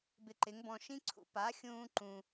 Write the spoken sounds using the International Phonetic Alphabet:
bɪ˧ǃɪ˩˥ŋbɔ̃˧ ʃĩ˥ǀʰṵ˩ pa˩˥xʲũː˧ ǃũ˩

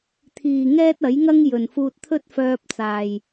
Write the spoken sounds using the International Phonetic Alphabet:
t̪ʰiː˨ ŋɛː˥t̚ ɐ˨˥jŋɐ˥ŋ jɵ˨nfuː˧t̚t̪ʰɵ˥t̚ fœː˧p̚t͡saː˨j

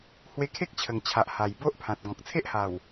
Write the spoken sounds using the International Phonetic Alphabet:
hwe˧kʰe˦k̚t͡ɕʰə˨˩ŋt͡ɕʰa˨ʔ ha˨˩jbo˦ʔpʰã˨t̚ ɡɔ̃˨k̚t͡sʰe˦ʔha˨˩w

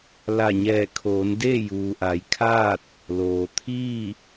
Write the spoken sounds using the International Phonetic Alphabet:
la˧˩ɲɛː˧˩ kʰoː˩˧ndeː˥˨juː˩ ʔa˩˧jkʰaː˥˨t̚ | loː˩ t̪ʰiː˥˨

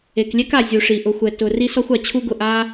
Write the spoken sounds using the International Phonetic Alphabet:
e˩klʲɛ˥k a˩ zʲu˩ʂi˩ ʔʊ˩xʷɛ˩ tʊ˩ ri˥sɔ˥xʷ a˩t͡ɕʰu˥ɡʊ˩ ʔa˥

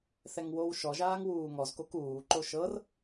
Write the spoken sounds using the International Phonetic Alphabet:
θɛŋwowʃɔʒaːŋ wuːŋɔzkok uːǃo ʃɤr

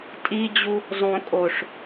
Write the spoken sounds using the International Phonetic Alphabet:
tʼid͡ʑu | zˤõ kʼoʂ

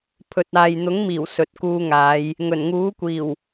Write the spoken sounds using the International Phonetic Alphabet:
pʰɵ˨t̚aː˨jn̪ʊ˨˥ŋmiː˨˩w sɵ˨t̚kuː˧ŋaː˨˧j | ŋɵ˨˩n ŋuː˨˥kʷiː˨˩w

